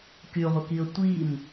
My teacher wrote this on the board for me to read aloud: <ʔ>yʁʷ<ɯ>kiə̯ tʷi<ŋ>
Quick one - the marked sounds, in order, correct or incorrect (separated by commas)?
incorrect, incorrect, incorrect